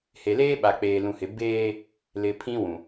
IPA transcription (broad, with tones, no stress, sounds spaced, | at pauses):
h e˨ l eː˦ ɓ a˨ k͡p eː˨ l ũ˨ h ɪ˨ b eː˦ | l ɪ˨ pʰ ĩ˦ w ũ˨